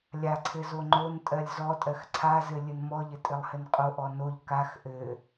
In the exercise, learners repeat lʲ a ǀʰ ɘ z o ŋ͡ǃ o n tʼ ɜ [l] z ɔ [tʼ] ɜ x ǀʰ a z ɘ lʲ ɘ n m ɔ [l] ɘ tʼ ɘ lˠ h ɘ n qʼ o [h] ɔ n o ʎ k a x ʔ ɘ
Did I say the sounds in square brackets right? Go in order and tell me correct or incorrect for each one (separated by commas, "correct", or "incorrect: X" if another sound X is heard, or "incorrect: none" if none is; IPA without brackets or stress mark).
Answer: incorrect: lʲ, correct, incorrect: ʎ, incorrect: ʔ